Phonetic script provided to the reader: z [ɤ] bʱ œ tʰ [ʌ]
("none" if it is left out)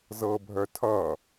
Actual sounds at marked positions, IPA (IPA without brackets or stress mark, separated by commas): ɤ, ʌ